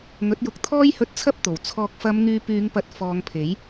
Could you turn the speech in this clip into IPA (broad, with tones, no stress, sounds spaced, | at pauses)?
ŋ ɵ˨˥ t̚ j ʊ˨ k̚ t̪ʰ ɔː˥ j h ɵ˧ t̚ t͡sʰ ɐ˥ p̚ t̪ o˨˩ w t͡sʰ ɔː˨ k̚ f ɐ˨˧ m ŋ yː˨˧ p yː˨˧ ŋ p ɐ˨˥ t̚ f ɔː˨˧ ŋ pʰ e˨˥ j